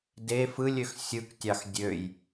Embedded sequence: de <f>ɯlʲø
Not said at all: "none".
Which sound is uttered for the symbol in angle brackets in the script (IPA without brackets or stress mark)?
f